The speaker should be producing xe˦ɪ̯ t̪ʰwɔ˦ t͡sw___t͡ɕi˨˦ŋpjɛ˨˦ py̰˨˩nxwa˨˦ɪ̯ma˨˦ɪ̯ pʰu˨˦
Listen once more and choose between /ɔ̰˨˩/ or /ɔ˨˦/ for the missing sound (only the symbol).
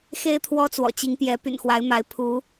ɔ̰˨˩